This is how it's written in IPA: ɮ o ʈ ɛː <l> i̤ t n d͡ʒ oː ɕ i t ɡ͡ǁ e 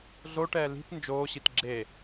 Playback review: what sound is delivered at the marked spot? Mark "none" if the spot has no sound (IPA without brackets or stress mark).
l